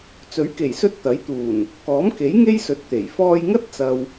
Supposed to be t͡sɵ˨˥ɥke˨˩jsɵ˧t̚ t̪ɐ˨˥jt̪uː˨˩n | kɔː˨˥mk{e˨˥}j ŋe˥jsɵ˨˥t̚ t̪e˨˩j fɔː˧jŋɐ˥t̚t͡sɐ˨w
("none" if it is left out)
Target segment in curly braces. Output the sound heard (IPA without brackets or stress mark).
e˨˥